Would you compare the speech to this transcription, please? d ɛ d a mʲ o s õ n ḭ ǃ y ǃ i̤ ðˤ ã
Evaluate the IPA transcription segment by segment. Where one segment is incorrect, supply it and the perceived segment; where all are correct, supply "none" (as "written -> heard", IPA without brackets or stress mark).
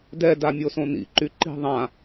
none